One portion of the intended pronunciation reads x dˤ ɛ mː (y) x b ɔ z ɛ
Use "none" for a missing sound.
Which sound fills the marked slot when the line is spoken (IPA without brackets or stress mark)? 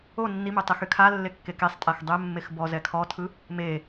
e